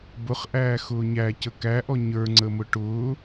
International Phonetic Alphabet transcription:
bʊχʔæː xʊːɲæ cəkæʔɔ ɲə˞ŋ͡ǀəmʊ ʈʊː

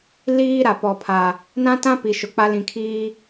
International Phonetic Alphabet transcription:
liː˦ ɾa˨pɔ˨pʰa˨ | nã˦tã˦pi˨ ʃʊ˨k͡pa˦ lĩ˨kʰiː˦

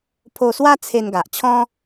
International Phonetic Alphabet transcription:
pʰo˧swa˦ t͡sʰe˧nɡa˨ʔ t͡ɕʰɔ̃˦

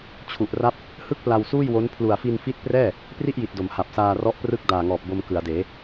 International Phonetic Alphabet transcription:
t͡ɕʰu˨˩ʔra˦˥p̚ | hɯ˥˩k̚pla˧wsuː˥˩jwo˦˥n pʰlu˨˩a̯fi˧nfi˦˥t̚prɛː˥˩ | pri˥˩ʔji˨˩t̚do˩˦m ha˨˩p̚saː˧ rɔ˦˥ʔprɯ˦˥k̚ daː˨˩ŋɔː˨˩p̚ bo˧mkɯ˩˦a̯deː˩˦

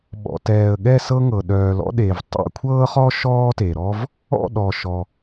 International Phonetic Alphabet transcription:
ɓɔ̰˨tɛː˨ə̯ɠɛ˥˧ sɤ˥ŋɤ˨ ɗœː˨lɔ̰˥ɗe˨v tˤɛ̰˥˧kʷʰɤː˥χɔ˥ ʃɔː˥te˨ɾɔ˥v | ɔ̰˥˧ ɗɔ˨ʃɔ˨

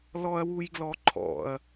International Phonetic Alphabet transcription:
lɔɐ̯wujɡlɔǃʰɔ̰ɐ̯

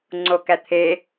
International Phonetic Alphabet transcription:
ŋ͡ǀokæt̪ʰe

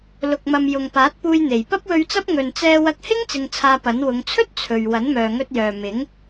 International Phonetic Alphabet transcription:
lʊ˨k̚ mɐ˨mjʊ˨ŋpaː˨˥t̚ puː˧jn̪e˨˩j pɐ˥p̚wɵ˧ɥt͡sɐ˥p̚ ŋɵ˨nt͡sɛː˧ wɐ˧k̚hɪ˥ŋ t͡sɪ˧ŋt͡sʰaː˧pɐ˨˥n wʊ˨˧ŋ t͡sʰɵ˥t̚ t͡sʰɵ˨ɥ wɐ˨˥nmœː˨ŋɵ˧t̚jœː˨ mɪ˨˥ŋ

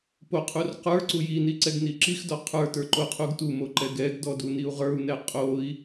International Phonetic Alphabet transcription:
poqʰur qə˞ ǀujini ǀɛɡniǁixdɔ qʰə˞tə˞ ǃoqʰuɡtumo ǃɛɡɛɡdɔ duniu̯ʁə˞u̯nɛ qʼoi̯

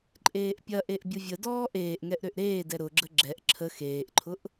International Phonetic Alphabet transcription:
ǃʼeːʔpʲɐʔeʔ bʲʊvʲədɔː ʔeːʔŋɛʔ ɾøʔɾeːdɛ ɾʊɡ͡ǁə ɡ͡ǁɛʔ ǁʰə xeːʔǃʰʊʔ

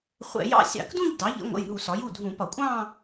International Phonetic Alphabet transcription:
χʷɛ̰˧˩˧jɑ̰˥˧ sʲɑ̰˧˩˧kdũ˥˧ʎ dɑ˩˥ʎə̰˩˥ŋʷə̰˩˧˩jɦu˧˩˧s ɒ˩˥ju˩˧˩dʱũ˧˩˧pɒ˧˩˧ kʷʼɑ̃˥˧

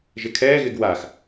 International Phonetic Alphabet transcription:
ʒɪkʰɛːɣɪɡ wax

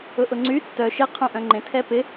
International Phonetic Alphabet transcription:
ʊʔʊŋ͡ǀy tːœ ʃɪ qʰũʔœ̃ŋ͡ǃẽ tʰɛpɪ

